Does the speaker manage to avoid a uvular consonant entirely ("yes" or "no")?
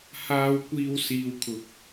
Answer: yes